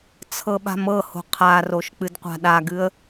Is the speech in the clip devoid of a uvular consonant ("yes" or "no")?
no